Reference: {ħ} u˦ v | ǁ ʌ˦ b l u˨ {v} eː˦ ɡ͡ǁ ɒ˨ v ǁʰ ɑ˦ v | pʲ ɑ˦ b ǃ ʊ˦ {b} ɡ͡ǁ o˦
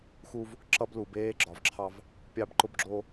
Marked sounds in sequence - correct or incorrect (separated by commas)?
incorrect, incorrect, correct